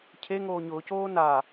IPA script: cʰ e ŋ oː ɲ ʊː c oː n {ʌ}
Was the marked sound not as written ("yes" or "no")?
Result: yes